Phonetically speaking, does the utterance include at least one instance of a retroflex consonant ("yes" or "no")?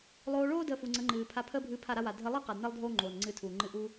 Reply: yes